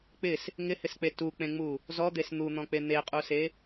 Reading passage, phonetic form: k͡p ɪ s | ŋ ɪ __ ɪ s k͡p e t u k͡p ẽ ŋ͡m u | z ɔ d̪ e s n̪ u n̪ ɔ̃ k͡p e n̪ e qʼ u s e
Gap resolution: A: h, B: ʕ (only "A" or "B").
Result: A